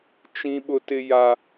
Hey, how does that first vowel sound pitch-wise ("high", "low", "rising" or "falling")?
high